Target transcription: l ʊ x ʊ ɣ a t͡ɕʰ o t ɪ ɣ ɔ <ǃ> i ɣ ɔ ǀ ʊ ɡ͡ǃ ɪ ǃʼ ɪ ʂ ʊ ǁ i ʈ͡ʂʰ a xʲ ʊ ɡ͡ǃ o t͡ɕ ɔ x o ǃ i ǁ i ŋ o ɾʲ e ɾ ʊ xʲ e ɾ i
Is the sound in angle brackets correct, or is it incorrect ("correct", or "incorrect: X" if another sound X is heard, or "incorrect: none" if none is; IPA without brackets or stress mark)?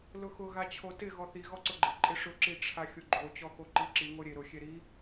incorrect: θ